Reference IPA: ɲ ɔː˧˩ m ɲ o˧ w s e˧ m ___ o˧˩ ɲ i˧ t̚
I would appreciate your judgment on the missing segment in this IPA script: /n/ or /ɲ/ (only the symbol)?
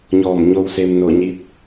n